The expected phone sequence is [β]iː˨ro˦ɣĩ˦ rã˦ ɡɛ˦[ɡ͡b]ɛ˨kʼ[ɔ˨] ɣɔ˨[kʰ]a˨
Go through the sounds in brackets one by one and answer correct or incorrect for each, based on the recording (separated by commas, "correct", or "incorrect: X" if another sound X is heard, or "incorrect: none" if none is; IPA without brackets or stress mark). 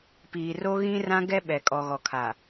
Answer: incorrect: p, incorrect: ɓ, correct, correct